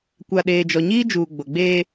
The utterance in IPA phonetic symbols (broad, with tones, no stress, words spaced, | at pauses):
kʷa˨ɗeː˨ d͡ʒɔ˨ɲiː˦ d͡ʒuː˨ɡ͡bo˨ɡ͡beː˦